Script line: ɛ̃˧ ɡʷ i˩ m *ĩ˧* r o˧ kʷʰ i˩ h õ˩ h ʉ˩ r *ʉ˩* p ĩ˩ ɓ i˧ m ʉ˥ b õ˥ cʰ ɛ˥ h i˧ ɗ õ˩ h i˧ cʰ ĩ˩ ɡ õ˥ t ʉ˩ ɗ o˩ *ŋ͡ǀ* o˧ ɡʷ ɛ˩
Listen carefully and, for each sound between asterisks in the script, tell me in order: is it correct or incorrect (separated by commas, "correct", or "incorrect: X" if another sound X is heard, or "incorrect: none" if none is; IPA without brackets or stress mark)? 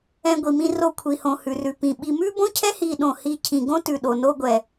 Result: correct, correct, incorrect: n